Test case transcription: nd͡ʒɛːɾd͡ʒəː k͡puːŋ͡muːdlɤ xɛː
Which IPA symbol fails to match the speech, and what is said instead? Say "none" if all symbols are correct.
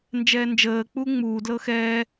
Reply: ɾ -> n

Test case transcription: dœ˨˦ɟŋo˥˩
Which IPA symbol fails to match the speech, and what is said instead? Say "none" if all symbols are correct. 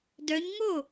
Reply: ɟ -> ɲ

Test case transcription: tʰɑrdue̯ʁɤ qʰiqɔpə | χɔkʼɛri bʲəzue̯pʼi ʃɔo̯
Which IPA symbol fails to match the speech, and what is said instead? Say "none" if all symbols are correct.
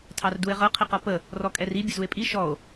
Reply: χ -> r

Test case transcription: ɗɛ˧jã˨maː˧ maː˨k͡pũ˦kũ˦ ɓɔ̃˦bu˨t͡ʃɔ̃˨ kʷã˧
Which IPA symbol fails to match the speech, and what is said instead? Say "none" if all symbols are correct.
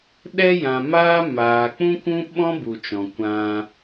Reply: none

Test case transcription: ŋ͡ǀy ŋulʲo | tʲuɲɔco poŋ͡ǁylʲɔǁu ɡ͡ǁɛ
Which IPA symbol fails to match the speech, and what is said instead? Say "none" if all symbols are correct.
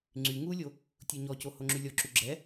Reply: p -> h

